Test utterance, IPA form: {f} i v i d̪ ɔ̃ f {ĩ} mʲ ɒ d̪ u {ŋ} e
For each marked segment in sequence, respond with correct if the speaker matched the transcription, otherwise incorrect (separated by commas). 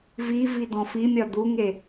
incorrect, incorrect, correct